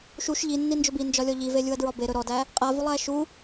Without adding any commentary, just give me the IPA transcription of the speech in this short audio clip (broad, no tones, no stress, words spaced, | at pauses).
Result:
ʃuʃ ʎinːind͡ʒɵb ind͡ʒɒlʲɔ ʎivelʲuɐ̯dɹɒ beɾɵ ɾɔdæ | qʼavulˠæ ʃu